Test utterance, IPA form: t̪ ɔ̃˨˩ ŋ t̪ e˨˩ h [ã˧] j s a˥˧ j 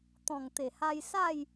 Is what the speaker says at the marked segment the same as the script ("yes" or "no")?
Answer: no